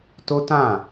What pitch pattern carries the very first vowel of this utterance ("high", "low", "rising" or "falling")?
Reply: high